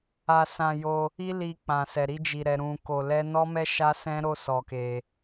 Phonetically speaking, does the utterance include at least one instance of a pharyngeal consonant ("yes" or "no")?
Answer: no